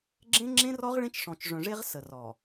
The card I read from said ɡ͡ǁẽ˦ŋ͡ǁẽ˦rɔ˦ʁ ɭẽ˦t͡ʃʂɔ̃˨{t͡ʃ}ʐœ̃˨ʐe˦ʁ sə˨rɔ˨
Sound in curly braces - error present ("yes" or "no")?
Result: no